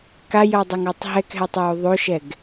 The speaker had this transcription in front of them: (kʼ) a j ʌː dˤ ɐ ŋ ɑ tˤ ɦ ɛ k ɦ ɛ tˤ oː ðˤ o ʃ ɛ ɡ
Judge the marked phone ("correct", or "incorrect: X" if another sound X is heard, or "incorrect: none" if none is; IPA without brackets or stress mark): incorrect: k